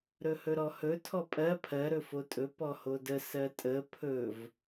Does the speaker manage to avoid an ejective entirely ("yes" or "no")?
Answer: no